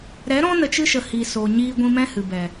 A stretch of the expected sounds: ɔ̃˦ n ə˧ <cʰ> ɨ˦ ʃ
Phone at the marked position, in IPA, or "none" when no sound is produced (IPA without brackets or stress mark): t͡ʃ